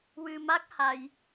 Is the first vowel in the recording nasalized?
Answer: no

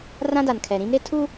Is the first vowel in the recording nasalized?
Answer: yes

